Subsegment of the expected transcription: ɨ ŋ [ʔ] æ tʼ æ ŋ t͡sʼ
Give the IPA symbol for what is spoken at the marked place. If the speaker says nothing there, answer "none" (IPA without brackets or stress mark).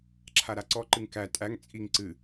k